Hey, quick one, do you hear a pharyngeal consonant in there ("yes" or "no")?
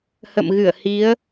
no